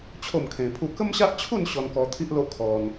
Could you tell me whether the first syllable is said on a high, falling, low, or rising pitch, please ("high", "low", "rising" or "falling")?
falling